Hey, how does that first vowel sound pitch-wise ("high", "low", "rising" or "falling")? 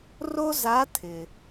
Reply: high